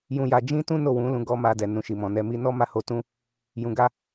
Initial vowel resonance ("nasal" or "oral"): nasal